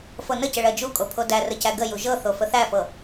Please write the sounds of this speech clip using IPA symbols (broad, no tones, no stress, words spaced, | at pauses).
fɤnəcə ɭɜd͡ʒukʼo pʰodærəcæ ɡəju ʒɤθo fəθæfɤ